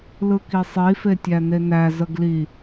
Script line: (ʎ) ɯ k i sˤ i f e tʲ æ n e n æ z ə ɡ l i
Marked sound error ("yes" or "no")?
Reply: yes